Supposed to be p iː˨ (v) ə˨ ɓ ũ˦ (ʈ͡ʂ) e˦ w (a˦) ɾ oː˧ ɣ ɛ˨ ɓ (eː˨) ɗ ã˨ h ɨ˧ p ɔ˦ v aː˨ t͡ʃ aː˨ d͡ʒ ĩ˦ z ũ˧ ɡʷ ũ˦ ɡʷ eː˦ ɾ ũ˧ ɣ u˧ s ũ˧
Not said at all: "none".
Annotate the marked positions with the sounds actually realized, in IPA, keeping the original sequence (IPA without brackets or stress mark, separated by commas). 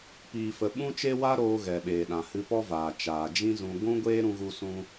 f, t͡ʃ, a˦, eː˨